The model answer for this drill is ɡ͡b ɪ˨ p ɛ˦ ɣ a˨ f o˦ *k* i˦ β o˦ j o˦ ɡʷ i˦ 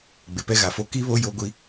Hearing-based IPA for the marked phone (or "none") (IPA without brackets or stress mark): k